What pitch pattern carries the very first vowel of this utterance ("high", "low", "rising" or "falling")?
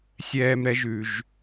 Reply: high